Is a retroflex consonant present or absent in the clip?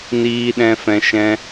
absent